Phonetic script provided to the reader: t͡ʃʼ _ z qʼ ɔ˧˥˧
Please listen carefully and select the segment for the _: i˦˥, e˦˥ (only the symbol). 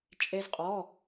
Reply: e˦˥